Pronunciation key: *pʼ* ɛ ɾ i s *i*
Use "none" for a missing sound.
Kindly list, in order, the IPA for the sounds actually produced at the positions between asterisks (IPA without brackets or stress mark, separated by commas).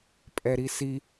pʼ, i